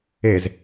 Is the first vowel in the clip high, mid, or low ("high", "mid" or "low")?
mid